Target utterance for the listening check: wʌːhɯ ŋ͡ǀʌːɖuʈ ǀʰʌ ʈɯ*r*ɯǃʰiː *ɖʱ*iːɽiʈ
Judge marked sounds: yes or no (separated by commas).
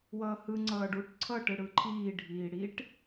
no, yes